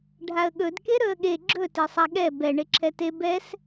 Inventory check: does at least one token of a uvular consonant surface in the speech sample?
no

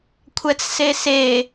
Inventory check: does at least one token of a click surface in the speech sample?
no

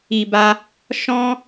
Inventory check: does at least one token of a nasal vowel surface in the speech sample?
yes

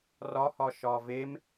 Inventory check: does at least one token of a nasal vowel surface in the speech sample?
no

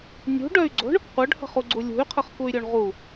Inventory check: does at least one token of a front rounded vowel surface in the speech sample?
yes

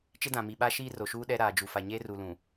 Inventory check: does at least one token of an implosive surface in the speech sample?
yes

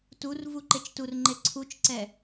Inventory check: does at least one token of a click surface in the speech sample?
yes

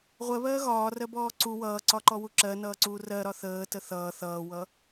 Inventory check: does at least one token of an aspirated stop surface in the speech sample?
no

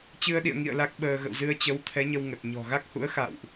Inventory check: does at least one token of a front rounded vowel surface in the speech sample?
no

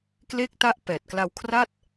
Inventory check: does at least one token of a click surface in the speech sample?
no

